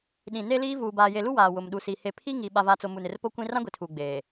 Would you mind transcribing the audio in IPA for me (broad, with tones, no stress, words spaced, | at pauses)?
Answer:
ɗĩ˨ ne˦liː˦ vuː˨baː˨je˨lu˦ waː˨ wʊ˨mɗu˨si˨ he˨ pʰi˦ŋi˨ ɓa˨va˨t͡so˨ mu˨nɪ˨rpo˦ kʷĩ˦ rã˦ɡʷi˨tʰuː˨ ɡ͡beː˨